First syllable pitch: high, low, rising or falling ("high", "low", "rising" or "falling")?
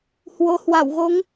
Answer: rising